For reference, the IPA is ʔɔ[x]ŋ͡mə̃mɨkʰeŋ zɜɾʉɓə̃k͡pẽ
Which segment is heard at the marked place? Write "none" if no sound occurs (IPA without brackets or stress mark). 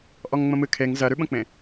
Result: ŋ